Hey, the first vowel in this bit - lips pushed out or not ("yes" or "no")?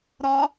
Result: yes